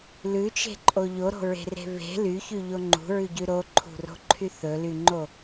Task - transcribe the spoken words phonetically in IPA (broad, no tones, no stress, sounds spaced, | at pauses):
l ʉ t͡ʃ e̤ ǃʼ o ʎ o ɾ o̤ ɹ e̤ r e̤ β e̤ l y ç y ʎ o ŋ͡ǃ ṳ ɹ ʉ ɟ ʉ ɾ o ǃʰ ṳ r o̤ ǃʰ y θ ɵ l y ŋ͡ǃ o